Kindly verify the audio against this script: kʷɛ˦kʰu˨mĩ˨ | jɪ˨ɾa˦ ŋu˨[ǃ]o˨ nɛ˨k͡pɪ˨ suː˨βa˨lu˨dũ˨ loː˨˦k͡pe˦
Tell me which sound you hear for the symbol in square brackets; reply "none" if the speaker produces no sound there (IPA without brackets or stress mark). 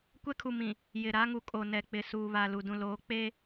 kʼ